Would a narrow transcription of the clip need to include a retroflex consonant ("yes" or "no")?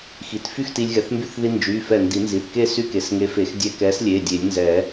no